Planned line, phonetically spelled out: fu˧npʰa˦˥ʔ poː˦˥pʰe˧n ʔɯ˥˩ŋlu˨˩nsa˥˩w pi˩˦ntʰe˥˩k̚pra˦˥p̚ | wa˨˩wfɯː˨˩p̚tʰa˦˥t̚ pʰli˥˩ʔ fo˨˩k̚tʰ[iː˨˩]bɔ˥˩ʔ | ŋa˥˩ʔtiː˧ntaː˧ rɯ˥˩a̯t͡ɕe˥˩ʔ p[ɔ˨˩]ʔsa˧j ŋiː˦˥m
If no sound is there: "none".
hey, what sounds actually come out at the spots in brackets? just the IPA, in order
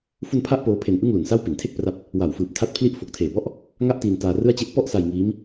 eː˨˩, ɔ˥˩

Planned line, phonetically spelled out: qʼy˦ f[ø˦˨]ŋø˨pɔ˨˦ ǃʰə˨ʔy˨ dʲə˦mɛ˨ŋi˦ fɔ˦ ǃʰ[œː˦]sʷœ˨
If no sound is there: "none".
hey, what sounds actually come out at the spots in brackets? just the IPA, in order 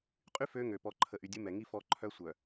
ø˦, œ˦

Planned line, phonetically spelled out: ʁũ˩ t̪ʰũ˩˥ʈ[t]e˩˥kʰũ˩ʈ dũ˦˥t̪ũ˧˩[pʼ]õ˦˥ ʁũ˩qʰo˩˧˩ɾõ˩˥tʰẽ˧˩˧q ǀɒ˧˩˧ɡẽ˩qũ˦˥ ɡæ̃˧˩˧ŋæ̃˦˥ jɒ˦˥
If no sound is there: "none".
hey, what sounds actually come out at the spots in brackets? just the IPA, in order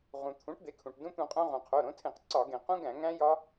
d̪, qʼ

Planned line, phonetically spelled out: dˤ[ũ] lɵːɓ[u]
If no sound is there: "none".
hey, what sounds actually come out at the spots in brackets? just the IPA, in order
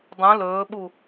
ũ, u

